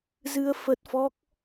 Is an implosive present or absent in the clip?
absent